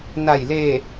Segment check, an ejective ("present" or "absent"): absent